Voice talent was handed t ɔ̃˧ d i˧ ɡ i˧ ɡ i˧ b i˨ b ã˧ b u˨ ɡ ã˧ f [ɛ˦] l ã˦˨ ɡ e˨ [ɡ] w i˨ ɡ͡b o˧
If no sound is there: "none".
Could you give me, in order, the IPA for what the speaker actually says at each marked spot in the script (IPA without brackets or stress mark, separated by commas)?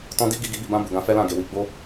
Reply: ɛ˦, none